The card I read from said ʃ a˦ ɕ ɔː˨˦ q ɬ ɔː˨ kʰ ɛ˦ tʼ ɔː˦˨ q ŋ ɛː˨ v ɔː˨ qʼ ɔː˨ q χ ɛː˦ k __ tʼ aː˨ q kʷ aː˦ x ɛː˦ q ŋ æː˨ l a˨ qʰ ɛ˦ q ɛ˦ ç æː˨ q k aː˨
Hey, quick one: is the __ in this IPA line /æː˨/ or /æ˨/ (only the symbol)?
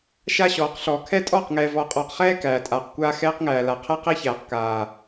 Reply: æː˨